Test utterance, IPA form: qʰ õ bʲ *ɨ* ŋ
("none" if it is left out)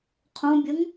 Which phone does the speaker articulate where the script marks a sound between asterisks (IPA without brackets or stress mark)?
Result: ə